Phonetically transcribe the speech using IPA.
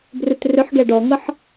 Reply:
brʏtrʏħɡɛ ɖɔŋɤħ

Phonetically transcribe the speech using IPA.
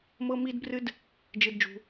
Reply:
mɤ˦mi˦dbrɨ˦d | d͡ʒɨ˧d d͡ʒṳ˧

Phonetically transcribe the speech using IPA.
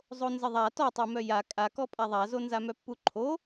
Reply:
zˤonzəðˤa tɔtˤomœ ja kʼakɔ pʼaðˤazo nzamœpːuǃʰo

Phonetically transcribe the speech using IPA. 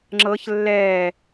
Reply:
ŋ͡ǁɤç lːɛː

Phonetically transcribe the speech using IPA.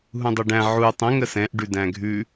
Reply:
ɦũdˤʊɖæ̃ ʕu tˤə̃ ŋəsɛ̃ʔ ɖʉdæ̃ɡʱʉ

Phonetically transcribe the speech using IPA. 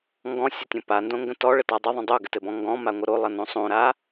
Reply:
ŋɡɔ̃sʲətʲõ pandõŋɡə̃ tɔɭəta dˤəðˤə̃ dˤoɡɘtɘbɔ̃ ŋɡɔ̃maŋʷə ɾolˠʌnõ sˤõɾa

